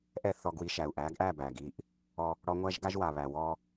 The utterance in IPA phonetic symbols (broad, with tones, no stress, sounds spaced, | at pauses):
ʔ ɛ˦˨ θ ɔ˧ ɡ w i˧ ʃ æ˨ u̯ ʔ æ˨˦ ɡ ʔ æ˦˨ b æ˨ ɡ i˦˨ ʔ | ɔ˧ | ɽ ɔ˧ ŋʷ æ˦ ʒ ɡ a˦ ʒ w a˨ β æ˨ w ɔ˦